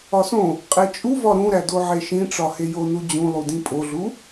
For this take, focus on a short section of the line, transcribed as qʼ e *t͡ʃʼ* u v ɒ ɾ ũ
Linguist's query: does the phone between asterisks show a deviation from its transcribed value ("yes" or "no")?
no